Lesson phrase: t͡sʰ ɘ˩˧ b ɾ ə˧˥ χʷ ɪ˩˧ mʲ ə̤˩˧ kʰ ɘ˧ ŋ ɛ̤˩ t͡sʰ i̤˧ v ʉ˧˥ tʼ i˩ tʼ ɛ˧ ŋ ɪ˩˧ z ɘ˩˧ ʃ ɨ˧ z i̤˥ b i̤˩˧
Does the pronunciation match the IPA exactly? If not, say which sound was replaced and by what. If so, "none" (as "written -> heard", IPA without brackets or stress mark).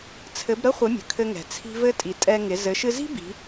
ʉ˧˥ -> ɘ˧˥